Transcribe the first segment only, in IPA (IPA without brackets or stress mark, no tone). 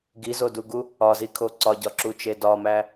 ɡ